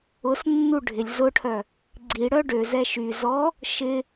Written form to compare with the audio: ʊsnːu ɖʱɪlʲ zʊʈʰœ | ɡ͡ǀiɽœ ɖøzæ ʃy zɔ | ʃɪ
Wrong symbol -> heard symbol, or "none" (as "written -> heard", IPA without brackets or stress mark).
æ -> ɛ